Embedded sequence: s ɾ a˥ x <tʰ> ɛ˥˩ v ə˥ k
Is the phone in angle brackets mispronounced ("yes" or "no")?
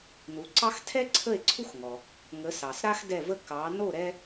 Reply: yes